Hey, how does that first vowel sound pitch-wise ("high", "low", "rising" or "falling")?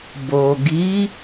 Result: low